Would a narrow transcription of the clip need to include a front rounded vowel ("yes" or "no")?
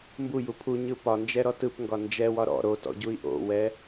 no